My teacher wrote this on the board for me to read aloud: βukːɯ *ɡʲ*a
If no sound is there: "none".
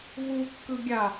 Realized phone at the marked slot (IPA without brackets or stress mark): ɡʲ